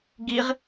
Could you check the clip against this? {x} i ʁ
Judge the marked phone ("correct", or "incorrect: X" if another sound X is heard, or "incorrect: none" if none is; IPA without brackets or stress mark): incorrect: ɡ